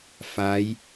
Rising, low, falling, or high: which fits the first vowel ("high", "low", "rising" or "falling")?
rising